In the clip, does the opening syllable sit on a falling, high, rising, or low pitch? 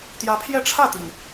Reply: rising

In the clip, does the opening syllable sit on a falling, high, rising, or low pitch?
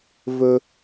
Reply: high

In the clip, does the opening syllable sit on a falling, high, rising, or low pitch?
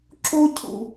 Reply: high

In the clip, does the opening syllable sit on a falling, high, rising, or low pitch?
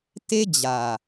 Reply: high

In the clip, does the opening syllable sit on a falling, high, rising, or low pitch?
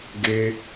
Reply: high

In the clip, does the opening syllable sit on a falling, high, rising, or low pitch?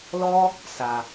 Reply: high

